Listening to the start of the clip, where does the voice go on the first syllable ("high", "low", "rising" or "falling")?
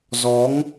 rising